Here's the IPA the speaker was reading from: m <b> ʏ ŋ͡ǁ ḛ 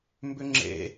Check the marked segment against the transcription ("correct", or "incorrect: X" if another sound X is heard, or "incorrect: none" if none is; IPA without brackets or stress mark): correct